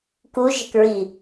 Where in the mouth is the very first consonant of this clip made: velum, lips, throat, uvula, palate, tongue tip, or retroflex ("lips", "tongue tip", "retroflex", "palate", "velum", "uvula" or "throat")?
velum